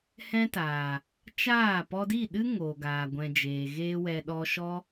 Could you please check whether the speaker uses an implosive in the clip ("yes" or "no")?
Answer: yes